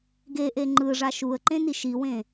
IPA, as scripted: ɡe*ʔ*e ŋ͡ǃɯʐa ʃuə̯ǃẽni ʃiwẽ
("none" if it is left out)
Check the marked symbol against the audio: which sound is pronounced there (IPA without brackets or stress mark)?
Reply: ʔ